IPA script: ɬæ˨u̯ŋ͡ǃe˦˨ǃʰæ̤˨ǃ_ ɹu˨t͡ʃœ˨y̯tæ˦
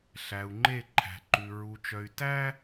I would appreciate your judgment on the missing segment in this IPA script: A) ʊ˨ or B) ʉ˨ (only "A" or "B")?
B